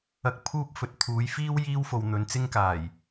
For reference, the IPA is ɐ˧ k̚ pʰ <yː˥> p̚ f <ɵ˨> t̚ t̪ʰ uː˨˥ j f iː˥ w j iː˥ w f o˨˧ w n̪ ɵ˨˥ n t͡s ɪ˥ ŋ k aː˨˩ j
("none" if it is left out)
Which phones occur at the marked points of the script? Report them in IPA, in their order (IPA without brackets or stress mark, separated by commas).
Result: uː˥, ɵ˨